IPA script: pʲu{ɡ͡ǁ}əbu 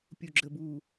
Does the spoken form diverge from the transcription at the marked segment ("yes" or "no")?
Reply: no